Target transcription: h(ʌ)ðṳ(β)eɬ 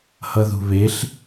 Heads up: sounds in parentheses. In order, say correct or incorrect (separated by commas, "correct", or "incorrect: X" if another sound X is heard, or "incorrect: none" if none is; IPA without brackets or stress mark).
correct, correct